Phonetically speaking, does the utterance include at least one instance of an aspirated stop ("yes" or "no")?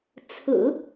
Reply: yes